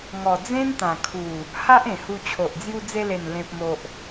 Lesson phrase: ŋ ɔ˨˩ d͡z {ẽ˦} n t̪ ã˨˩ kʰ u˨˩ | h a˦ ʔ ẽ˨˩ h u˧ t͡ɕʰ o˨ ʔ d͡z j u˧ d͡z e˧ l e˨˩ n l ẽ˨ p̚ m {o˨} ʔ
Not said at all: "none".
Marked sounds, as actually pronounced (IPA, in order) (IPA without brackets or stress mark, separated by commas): ẽ˦, o˨